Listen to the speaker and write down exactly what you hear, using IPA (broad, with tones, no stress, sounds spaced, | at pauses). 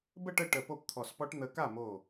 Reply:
b ə˥˨ ʈ ə˥˨ ʈ ə˧˩ p o˥˨ p t̪ʰ ɔ˧˩ s p ɔ˦˥ ʈ n̪ ə˦˥ k a˥˨ m o˧˩